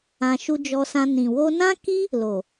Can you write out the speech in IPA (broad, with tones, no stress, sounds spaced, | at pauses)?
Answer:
ã˧ ʃ u˦ d͡ʒ ɔ˧ s ã˧ n ĩ˨ w o˧ n ã˦ k i˦ | l o˨